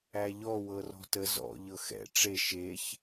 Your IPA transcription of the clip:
æ ʎ ɔ w ɤ r ɔ̤ t ə z ɔ̰ ʎ ɤ x ɛ̰ ʈ͡ʂ e ʃ e ç

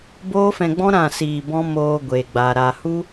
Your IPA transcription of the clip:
b oː˦ f ɛ̃˧ ɡ͡b ɔ̃˦ ɾ ã˦˨ s iː˧ b ɔ̃˦ m oː˧ ɡʷ e˨ ɡ͡b a˨ ɾ a˨ h u˦

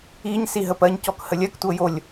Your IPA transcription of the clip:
i ɲ s i ɦ ə p ɜ ɲ c ɔ k h ə lʲ ɜ k tʷ ɤ j o lʲ

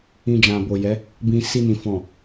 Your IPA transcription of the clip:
ĩ˧ d͡ʒ ã˨ b o˨ j ɛ˨˦ | b ĩ˧ s i˧ n ĩ˨ f ɔ̃˨

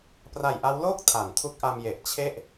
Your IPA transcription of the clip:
p r a˨˩ j ʔ a˦˥ w l oː˥˩ k̚ tʰ a˩˦ n tʰ u˦˥ k̚ ʔ a˧ m j e˨˩ ʔ t͡ɕʰ e˥˩ ʔ

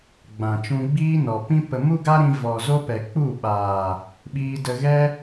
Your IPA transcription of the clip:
ɡ͡b ã˨ t͡ʃ ũ˧ ɡ͡b iː˦ n ɔ˨ p ĩ˦ p ə˧ m u˦ ɡ a˦ ɾ ĩ˧ v ɔ˨ z o˦ p ɛ˨ k͡p u˦˨ ɓ aː˨ | ɓ iː˧ d ə˧ ɣ ɛ˦

